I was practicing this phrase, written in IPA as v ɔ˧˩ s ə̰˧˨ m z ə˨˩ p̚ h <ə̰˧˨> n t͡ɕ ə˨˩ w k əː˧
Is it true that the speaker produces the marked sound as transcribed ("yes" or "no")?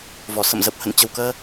yes